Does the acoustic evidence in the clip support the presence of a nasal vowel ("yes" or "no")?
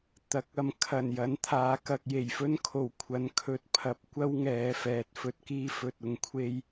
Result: no